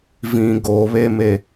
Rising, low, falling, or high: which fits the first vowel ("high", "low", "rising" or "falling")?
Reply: low